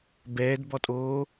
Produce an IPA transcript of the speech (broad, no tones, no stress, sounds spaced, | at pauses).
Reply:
b ɛː d b ɔ tʼ oː